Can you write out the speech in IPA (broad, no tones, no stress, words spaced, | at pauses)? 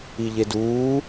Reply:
iʎeduː